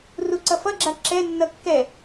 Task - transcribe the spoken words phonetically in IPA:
r u ǀ ʌ f ʌ ɡ͡ǁ a ǁ ɛ nː ʌ kː ɛ

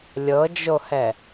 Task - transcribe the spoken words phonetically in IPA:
lʲ ɤ d͡ʒ o h ɛ

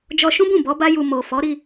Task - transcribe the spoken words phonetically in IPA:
d͡ʒ ɔ˧ ʃ ũ˦ b ũ˦˨ b ɔ˨˦ b a˦ j u˧ m o˨ f ɔ˨˦ ɾ i˧

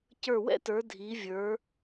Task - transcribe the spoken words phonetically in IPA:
c ə˞˧˩ w ɛ̰˥ t ə˞˩˧ dʱ i˩˧ vʲ ə˞˩˧

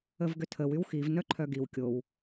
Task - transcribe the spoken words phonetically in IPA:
ə v ɡ ʏ tʰ ə w y w x i v n œ ǃʰ œ ɡ i w kʲ o w

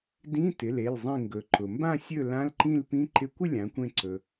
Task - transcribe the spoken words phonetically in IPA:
d ĩ˧˥˧ t ɪ˩˧˩ l e˩˧˩ l zˤ ĩ˧˩ ŋ ɡ ɵ˩˧ ǃ ʊ˩ m b ã˥˨ sʲ ɵ˥˨ l ã˧˥˧ l ǃ ĩ˥˨ l p ĩ˧˥˧ ǃ ɪ˥˨ kʷ ɪ˥˨ lʲ ã˩˧ kʷ ẽ˧˩ ǀ ɵ˩

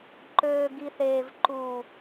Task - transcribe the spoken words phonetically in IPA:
ǃ øː˨ ɡ i˨ θ eː˨ v ǃ u˨

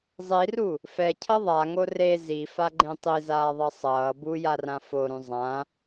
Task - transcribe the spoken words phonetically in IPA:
zˤ i r u | f ɛ cʰ ʌ ðˤ a ŋ o r e z i f a ɡ͡ǃ ẽ tˤ i z aː ðˤ ʌ sˤ ʌː b u j a r ã f o ɾ ũ zˤ ã

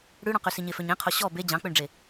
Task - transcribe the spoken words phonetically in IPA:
ɽ ʉ ɽ ɔ̃ q y s i ɲ e f ø ɲ ẽ qʰ o ɕ ɔ b e d͡ʑ ɑ̃ k͡p ø ɳ ɖ͡ʐ e

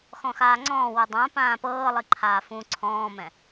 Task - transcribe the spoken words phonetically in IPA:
x ɔ̃ x aː ŋ͡ǀ ɔ̃ː w u dˤ ã p ãː p ɤː lˠ i ǃʰ aː f ũ ǀʰ ɔ̃ː m ɛ̃

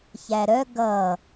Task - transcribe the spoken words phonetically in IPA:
ç æ ɾ œ ɡ ʌ

